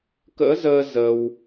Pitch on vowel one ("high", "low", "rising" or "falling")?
rising